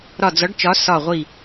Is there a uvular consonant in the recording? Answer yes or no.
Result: yes